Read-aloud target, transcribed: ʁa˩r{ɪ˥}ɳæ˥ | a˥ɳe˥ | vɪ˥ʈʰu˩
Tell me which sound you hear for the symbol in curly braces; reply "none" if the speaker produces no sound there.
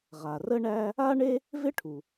ə˥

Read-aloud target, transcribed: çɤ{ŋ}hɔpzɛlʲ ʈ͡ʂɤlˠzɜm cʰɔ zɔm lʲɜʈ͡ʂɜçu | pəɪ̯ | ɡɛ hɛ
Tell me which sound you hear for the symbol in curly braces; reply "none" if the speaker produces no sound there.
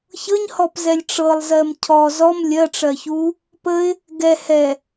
ɲ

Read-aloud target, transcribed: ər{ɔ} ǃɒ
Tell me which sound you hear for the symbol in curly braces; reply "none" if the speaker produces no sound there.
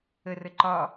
ə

